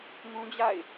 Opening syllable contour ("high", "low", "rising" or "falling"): high